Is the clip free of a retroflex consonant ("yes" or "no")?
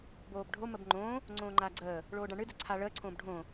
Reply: no